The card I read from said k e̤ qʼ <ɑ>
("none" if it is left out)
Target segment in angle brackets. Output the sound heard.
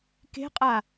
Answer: a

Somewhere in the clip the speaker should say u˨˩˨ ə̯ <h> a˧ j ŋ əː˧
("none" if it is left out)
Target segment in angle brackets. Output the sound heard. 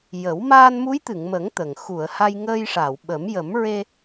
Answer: h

